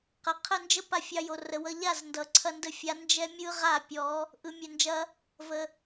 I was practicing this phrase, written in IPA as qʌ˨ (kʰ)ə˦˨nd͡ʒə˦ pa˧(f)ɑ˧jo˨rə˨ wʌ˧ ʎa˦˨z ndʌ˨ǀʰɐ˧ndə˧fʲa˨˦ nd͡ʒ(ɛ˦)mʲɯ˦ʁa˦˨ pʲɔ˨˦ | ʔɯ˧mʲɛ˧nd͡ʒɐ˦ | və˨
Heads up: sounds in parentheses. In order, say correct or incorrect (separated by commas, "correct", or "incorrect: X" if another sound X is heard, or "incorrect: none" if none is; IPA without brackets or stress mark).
incorrect: qʰ, incorrect: fʲ, correct